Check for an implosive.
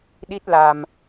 present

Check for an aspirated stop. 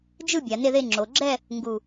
absent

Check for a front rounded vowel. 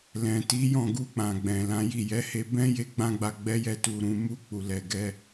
absent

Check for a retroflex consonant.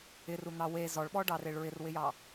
present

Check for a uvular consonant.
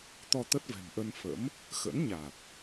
absent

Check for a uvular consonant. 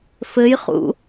present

